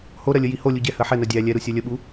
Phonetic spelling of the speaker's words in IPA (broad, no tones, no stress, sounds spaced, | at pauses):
h o ɾ ɜ lʲ ə j i h o lʲ u ɟ ɛ h ɜ ħ ɛ n ɜ dʲ æ lʲ ɛ ɾ u sʲ ɜ lʲ ə ɓ u